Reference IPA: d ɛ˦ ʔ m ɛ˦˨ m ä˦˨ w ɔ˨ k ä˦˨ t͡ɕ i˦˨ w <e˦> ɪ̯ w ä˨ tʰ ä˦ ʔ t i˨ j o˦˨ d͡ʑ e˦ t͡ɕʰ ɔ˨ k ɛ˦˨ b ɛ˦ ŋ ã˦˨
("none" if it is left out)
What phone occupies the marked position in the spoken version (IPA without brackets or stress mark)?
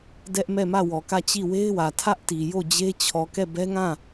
e˦